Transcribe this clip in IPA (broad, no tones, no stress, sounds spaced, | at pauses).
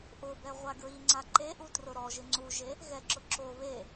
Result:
ʔ ʊ b ɛ ʁʷ a ɡ ɹ i ŋ͡ǀ a ǃ e ʔ u t r ʊ ɾ ɔ ʒ ɪ ŋ͡ǀ u ʒ e | ɣ ɛ ǁ ʊ ǁ o β e